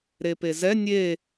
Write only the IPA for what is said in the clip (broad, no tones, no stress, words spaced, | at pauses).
ɾepezɛ nʲe